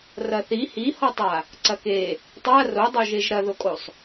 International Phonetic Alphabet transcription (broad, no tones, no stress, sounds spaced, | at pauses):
r ɐ θ i h i h ɔ tˤ a | ǀ ɐ k e | tˤ a r o dˤ o ʒ e ʒ ɾ ɐ ð o kʼ o sˤ